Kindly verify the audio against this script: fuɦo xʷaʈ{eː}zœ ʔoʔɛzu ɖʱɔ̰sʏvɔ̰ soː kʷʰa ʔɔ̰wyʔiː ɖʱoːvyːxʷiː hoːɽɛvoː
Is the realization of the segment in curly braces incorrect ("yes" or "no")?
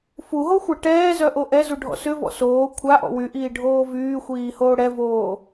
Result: yes